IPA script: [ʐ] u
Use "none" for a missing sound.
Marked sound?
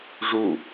ʐ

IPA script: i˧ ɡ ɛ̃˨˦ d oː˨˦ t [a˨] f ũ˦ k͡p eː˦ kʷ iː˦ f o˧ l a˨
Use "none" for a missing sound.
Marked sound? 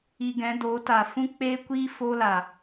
aː˨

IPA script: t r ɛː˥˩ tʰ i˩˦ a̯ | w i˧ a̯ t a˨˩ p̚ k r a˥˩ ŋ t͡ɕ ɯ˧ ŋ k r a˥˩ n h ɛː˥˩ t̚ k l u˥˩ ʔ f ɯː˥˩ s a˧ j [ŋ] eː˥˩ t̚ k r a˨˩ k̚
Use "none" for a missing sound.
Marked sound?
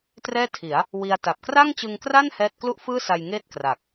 ŋ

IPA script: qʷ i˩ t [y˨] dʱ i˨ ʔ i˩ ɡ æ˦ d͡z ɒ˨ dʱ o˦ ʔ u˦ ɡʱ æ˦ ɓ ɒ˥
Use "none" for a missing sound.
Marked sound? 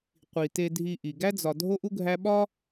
e˨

